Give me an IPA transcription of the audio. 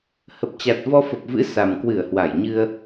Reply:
h ə˨˩ p̚ t͡ɕ a˨˩ t̚ v ɔ˧ f ə˨˩ p̚ v ɨ̰˧˥ s a˨˩ m k w ɨ˧˩ ə̯ h w a˧˩ j ɲ ɨ˧ ə̯

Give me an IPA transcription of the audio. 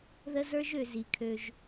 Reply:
ð ə˧ z ə˞˧ ʒ ø˨ z i˨ kʰ ø˧ ʒ

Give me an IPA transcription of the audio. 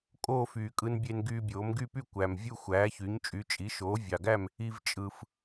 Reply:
kʼ oː˥˨ f yː˨˩ kʼ ɯ˧ n bʲ e˧ n ɡ yː˧ bʲ oː˩˥ m ɡ y˥˨ p y˥˨ kʷ æ˨˩ m vʲ u˥˨ xʷ æː˩˥ ç y˩˥ ɲ t͡ʃʼ y˩˥ t͡ʃʼ i˩˥ ʃ oː˩˥ vʲ ɑ˨˩ ɡ æ˥˨ m | i˧ v t͡ʃʼ ɯ˨˩ f

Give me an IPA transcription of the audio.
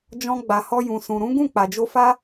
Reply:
d͡ʒ ɔ̃˧ ɡ͡b a˨ h ɔ˧ j ũ˨ s ũ˨ ɾ ũ˨˦ ɡ ũ˦˨ k͡p a˨ d͡ʒ o˧ f a˦

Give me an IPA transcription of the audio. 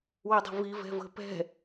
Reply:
w ə dˤ ə̤ v i v ɛ̤ v ə̤ p ɛ̤

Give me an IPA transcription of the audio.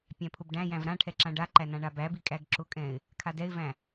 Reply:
pʲ æ̃ pʰ ʊ b ɖ æ̃ j æ̃ v ɾ ã ʈʰ ɛ ǁ ã ɖ a ǃ æ n ã ɳ a b æ b i kʼ æ ɡ ǁ ʊ kʼ ɛ̃ ɪ̯ | kʰ a d ɛ ɪ̯ v æ̃

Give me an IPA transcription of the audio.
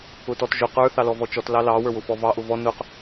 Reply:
ʊ t ɔ t ʒ ʊ q ə˞ θ ɑ l ɔ v ɔ t͡ʃ ɔ t l ɑ l ɑ w ə˞ w ʊ f ɔ v ɑ ʔ ʊ v ɔ n ʊ q

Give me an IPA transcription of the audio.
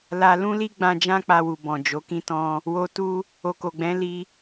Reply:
l a˧ l ũ˦ l i˦ ɡ͡b ã˧ d͡ʒ ã˦ k͡p a˧ w u˨ b ɔ̃˨ d͡ʒ o˨˦ k ĩ˦ t ɔ̃˦ | w o˨ t u˧ | o˨ k o˨ ɡ͡b ɛ̃˨˦ l i˧

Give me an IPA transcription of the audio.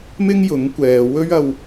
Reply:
m ɪ˥ ŋ j ʊ˨˥ ŋ kʷ ɛː˨ w ɵ˥ ɥ ɐ˧ w

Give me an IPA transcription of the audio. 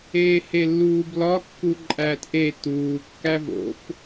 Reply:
eː h e lː uː b l ɒ kː u ǃʼ æː t ʔ e t uː kː æ v o̰ f

